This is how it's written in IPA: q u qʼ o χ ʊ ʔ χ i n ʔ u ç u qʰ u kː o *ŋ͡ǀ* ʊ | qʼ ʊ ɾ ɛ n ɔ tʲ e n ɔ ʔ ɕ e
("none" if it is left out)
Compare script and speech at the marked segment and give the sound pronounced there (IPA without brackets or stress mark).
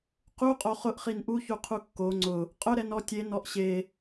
ŋ͡ǀ